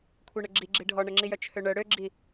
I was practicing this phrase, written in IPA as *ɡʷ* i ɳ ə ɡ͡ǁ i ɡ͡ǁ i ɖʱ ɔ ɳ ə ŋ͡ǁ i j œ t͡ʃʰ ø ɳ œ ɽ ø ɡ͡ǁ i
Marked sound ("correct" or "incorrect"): incorrect